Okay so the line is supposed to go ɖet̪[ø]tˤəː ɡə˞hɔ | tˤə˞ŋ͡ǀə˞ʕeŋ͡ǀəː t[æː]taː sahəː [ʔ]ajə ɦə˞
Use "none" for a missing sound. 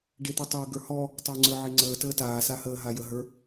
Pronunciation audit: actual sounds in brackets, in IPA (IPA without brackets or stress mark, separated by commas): u, əː, ɦ